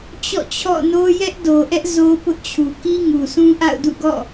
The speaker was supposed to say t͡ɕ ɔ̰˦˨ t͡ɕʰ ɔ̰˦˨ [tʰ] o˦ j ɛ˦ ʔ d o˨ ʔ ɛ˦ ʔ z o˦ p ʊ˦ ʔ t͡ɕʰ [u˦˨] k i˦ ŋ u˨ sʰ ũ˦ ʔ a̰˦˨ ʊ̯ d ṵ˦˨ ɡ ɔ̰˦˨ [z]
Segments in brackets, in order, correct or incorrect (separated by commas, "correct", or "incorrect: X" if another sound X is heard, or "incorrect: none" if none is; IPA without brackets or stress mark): incorrect: n, incorrect: u˨, incorrect: none